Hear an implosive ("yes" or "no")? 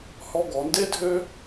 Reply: no